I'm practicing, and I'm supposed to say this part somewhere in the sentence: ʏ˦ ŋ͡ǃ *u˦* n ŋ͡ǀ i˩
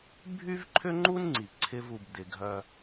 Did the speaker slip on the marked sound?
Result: no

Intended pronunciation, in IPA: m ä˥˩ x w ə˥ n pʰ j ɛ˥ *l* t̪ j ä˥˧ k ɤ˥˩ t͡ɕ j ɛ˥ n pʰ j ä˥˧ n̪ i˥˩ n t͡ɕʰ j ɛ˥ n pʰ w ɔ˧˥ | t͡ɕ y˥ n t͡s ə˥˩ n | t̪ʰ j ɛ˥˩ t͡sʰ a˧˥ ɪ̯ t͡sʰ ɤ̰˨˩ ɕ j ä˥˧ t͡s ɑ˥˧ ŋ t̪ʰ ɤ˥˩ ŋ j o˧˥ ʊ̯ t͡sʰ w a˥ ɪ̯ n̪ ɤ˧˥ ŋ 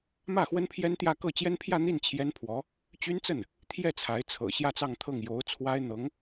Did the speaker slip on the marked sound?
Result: yes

